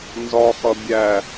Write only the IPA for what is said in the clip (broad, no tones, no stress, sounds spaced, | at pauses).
n z ɒ χ ʌ bʲ æ